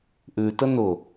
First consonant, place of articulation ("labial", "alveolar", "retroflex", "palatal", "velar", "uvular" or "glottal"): glottal